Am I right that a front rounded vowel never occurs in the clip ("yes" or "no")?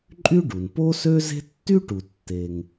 no